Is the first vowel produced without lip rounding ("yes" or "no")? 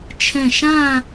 yes